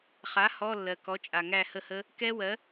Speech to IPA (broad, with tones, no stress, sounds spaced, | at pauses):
χ a˩˥ h ɔ˧˥˧ lː ɜ˩ k ɔ˩˥ t͡ʃʼ a˩ ŋ æ˦˨ h ə˦˨ h ə˦˥ | k ɛ˦˥ w ɜ˩˥